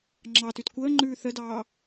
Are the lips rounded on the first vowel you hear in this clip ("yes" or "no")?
no